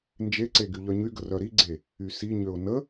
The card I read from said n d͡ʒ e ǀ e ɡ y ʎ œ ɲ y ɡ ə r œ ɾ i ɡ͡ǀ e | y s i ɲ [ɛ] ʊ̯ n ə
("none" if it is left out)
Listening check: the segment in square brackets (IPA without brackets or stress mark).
ø